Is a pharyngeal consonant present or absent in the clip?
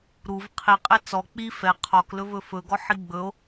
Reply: present